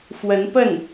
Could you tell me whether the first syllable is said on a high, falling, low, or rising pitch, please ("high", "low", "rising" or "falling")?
rising